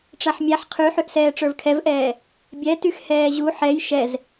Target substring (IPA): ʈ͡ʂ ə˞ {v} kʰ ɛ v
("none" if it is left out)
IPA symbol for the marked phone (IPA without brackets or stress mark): v